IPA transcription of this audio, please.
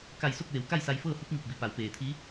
k a˧˩ j s o˥˨ k̚ ʋ e˩˧ w k a˥˨ j s a˧ j f ɤː˥˨ h u˧˥ p̚ ŋ i˧˩ p̚ b i˩ p a˩˧ w p eː˩ t̪ʰ i˧˥

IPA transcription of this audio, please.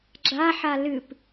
ɡ͡ǁ a ħ a l ɨ p

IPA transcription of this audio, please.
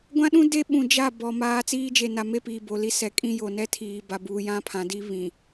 ɡʷ ã˦ ɗ ũ˦ d e˦ ɓ ũ˨ d͡ʒ a˦˨ b ɔ˨ m aː˨˦ t͡s iː˦ d͡ʒ e˨ n a˨ m e˦ p iː˨ b o˨ l i˦ s ɛ˨ kʼ ĩ˦ j o˨ n ɛ˦ tʰ iː˨ b a˨ b uː˨ j ã˦ pʰ ã˨ d i˦ β ĩ˨

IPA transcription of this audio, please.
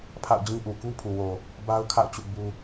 pʰ a̰˦˨ ʊ̯ d͡ʑ ĩ˦ ʔ u˨ k u˦ pʰ u˨ w o˨ | b a˦ ʊ̯ kʰ a̰˦˨ ʊ̯ t͡ɕ ṵ˦˨ b u˦

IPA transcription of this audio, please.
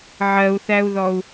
ʕ ɜ u̯ θ æ u̯ ð ɔ u̯

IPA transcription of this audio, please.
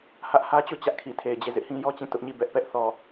h ä˦ ʔ h ä˦ t͡ɕ o˦˨ t͡ɕ ä˦ ʔ kʰ i˨ tʰ e˨ ɪ̯ d͡ʑ e˦˨ z ɪ˦ ʔ h ĩ˦ j ɔ˦ t͡ɕ ĩ˦˨ t ʊ˦ ʔ ɲ i˦˨ b ɛ˦ ʔ p ɛ˦ ʔ θ ɔ˨

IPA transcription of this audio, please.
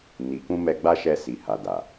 n i˨ k ũ˧ m ɛ˧ ɡ͡b a˦ ʃ ɛ˧ s i˨ h a˨ d a˨

